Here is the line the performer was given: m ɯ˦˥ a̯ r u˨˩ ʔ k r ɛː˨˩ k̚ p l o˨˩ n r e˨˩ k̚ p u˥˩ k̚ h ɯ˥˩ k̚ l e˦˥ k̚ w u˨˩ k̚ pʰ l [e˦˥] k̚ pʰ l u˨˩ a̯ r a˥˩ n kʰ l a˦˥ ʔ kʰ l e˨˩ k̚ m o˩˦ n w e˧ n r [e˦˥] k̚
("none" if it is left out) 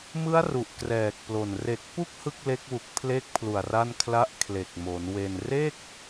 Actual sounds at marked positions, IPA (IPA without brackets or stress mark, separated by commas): e˦˥, e˥˩